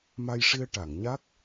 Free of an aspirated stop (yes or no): yes